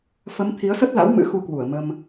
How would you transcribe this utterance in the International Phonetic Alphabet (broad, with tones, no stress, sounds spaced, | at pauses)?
f ə˨˦ m t̪ʰ i˨˦ ə̯ s ə˦˥ t̚ l a̰˧˥ w m ɨ̰˧˥ x u˧ k w u˧˩ ə̯ m ə˧ m